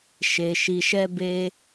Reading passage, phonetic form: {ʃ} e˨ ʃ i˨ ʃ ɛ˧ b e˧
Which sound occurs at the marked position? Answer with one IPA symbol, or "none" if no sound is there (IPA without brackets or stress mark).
ʃ